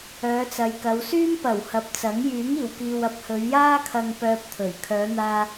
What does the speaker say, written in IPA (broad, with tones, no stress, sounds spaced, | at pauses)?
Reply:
œː˨˧ t͡s ɐ˨˧ j k ɐ˨˧ w s yː˥ m p ɐ˨˩ w h ɐ˨ p̚ t͡s ɐ˨˥ ŋ j yː˨˥ ŋ iː˨˩ w k iː˨ w ɐ˨˥ p̚ h ɵ˨˧ ɥ j aː˥ kʰ ɐ˧ ŋ p œː˧ p̚ t̪ʰ ɵ˨˩ ɥ kʰ œː˨˧ n̪ aː˧